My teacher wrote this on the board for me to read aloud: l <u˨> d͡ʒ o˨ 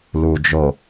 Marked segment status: correct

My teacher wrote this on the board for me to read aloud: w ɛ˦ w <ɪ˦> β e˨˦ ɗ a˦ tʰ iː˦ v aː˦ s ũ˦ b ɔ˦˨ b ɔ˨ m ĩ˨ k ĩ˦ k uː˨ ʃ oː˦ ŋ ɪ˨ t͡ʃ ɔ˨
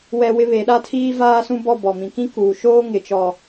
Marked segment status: correct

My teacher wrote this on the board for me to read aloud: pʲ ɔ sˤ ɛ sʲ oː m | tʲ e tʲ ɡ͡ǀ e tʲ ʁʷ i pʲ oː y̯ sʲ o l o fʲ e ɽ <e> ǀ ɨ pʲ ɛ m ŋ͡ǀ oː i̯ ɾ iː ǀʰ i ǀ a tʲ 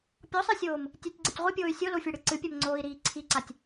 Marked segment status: incorrect: ɨ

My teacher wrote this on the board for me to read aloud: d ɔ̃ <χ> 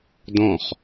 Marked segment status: correct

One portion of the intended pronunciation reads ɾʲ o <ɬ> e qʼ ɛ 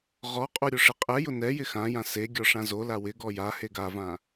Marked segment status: incorrect: ʂ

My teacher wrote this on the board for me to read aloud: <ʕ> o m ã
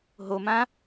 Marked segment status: incorrect: ɦ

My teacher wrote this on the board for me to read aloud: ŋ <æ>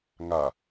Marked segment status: incorrect: a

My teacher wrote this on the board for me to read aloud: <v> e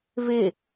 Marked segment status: correct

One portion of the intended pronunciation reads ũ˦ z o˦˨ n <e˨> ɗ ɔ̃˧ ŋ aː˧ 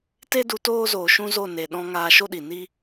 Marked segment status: correct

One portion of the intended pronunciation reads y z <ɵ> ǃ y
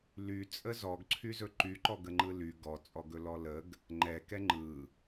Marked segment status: correct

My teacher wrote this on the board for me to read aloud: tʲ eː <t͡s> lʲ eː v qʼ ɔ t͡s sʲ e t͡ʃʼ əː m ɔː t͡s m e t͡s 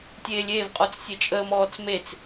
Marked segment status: incorrect: none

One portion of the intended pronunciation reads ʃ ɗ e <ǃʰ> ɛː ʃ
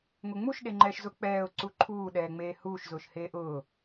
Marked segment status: incorrect: ŋ͡ǃ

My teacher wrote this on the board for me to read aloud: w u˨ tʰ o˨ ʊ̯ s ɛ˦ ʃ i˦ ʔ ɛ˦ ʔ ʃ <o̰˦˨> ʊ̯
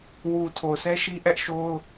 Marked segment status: incorrect: o˦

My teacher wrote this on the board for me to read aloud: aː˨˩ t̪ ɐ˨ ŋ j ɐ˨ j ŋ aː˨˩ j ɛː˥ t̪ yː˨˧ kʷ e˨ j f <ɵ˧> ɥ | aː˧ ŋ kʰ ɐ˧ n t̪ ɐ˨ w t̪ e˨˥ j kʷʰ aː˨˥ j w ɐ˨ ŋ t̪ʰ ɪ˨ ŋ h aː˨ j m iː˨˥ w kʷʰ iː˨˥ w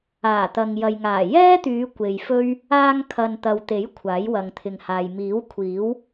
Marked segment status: incorrect: ɵ˥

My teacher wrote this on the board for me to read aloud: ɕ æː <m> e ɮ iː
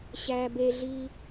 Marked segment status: incorrect: b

